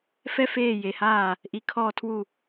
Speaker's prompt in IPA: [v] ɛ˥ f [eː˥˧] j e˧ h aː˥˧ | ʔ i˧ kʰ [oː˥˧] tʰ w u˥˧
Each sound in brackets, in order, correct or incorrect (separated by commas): incorrect, correct, incorrect